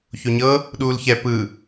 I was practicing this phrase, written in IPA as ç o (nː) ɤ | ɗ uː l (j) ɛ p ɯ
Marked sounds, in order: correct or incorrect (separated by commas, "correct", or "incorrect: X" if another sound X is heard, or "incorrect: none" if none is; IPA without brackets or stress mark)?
incorrect: ɲ, incorrect: ç